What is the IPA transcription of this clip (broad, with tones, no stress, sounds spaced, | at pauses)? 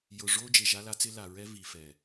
j ʊ˨ ʐ o˦ d͡ʒ e˨ ʒ a˦ l a˦ t͡s ɪ˦ l a˨ ɹ ɛ˦ v i˨ f ɛ˨